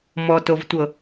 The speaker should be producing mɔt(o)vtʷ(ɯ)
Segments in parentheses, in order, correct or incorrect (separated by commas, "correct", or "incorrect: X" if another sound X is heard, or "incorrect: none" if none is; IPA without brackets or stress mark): correct, incorrect: ɤ